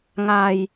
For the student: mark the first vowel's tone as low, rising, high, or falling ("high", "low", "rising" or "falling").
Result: low